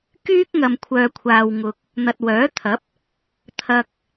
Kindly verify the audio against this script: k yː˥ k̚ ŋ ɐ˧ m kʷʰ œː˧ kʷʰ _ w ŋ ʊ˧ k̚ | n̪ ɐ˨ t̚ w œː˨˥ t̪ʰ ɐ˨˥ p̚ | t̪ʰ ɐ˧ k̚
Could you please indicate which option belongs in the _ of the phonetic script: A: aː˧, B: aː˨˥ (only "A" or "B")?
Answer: A